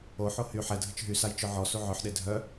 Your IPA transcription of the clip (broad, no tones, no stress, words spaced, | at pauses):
oħo hy ħɛ dʱət͡ʃɦysaj t͡ʃœʕɔsu ʕœħɗe dʱœ